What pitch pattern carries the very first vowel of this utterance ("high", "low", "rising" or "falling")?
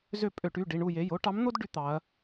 falling